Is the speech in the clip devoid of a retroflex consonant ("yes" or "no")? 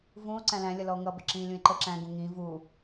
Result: yes